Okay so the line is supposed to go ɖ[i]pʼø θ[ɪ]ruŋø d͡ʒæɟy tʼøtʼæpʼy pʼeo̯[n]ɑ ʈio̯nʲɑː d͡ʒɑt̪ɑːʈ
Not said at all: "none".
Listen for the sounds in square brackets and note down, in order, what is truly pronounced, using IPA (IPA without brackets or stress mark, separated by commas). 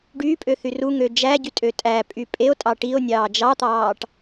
y, y, tʼ